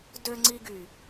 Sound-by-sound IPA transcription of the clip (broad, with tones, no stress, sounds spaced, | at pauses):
d ø˧ ŋ͡ǀ i˧ ɡ y˨